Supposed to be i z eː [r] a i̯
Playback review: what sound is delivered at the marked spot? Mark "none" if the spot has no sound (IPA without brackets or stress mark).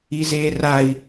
r